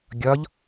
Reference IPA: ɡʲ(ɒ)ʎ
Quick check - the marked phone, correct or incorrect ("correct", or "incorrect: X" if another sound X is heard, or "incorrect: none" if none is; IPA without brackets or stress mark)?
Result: correct